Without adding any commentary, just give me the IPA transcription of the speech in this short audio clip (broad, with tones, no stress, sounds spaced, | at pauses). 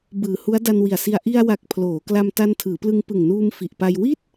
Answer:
b ɯː˨˩ h u˦˥ a̯ d a˧ n w i˨˩ a̯ s i˧ a̯ ʔ i˧ a̯ w a˨˩ k̚ pʰ l oː˩˦ k l a˧ m t a˧ n tʰ ɯː˩˦ p l ɯ˧ ŋ p ɯ˨˩ ŋ n uː˧ m f i˨˩ ʔ p a˧ j w i˥˩ t̚